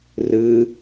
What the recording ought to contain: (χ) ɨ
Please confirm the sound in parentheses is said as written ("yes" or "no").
no